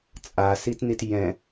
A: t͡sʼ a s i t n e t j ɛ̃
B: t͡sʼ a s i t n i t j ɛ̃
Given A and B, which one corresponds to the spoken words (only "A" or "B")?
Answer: B